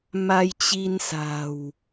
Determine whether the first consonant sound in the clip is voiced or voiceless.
voiced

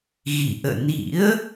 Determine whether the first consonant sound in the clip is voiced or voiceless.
voiced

